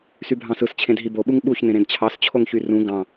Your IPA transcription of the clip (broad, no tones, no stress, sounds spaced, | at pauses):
s y bʱ ɑ̃ s ɯ s t͡ɕʰ ẽ d ɦ i b o ɓ u ŋ ɓ u ç n ẽ ɾ ẽ d t͡ɕʰ ɑ s t͡ɕʰ o ŋ ç y r ũ ɡ ɑ̃